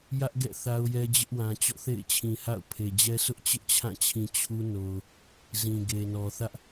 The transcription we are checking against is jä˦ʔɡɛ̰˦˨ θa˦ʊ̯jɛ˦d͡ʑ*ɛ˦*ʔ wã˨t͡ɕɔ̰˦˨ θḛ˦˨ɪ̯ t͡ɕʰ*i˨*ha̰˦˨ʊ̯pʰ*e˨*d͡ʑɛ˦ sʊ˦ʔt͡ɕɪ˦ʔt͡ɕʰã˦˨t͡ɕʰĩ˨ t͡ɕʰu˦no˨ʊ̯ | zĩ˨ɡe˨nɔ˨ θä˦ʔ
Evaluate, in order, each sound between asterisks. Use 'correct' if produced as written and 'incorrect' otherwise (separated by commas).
incorrect, incorrect, correct